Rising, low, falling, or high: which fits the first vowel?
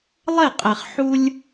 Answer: falling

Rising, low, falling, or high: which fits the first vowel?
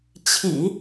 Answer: low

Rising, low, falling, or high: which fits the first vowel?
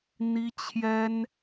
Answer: high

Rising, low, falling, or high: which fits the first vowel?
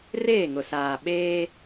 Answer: falling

